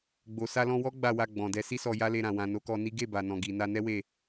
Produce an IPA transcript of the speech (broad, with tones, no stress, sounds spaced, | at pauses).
ɡ͡b o˨ s a˧ l ɔ̃˧ w ɔ˦ ɡ͡b a˦˨ w a˧ ɡ͡b ɔ̃˨ d ɛ˨˦ s i˦ s ɔ˧ j a˦ l e˧ ɾ ã˨ w ã˨ n o˨˦ k ɔ˧ n i˦ ɡ e˦˨ b a˨ n ɔ̃˨ ɡ i˨ n a˧ n ɛ˦ w e˦˨